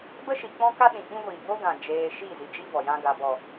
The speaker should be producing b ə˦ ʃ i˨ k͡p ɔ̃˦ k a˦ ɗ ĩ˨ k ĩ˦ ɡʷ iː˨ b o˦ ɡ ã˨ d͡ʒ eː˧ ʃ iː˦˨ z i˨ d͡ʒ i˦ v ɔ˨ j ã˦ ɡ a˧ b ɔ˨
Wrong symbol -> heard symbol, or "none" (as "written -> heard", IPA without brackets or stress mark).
none